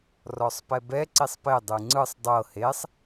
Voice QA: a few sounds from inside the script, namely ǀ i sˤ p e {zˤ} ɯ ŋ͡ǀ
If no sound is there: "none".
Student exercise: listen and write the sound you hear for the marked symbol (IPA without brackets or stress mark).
dˤ